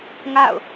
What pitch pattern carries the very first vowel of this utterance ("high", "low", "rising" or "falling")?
falling